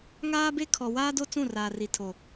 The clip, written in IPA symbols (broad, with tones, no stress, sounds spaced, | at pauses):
ŋ aː˦ b e˦ kʰ ɔ˨ w aː˦ d o˦ t͡s ũ˦˨ r aː˨ r i˨ tʰ o˨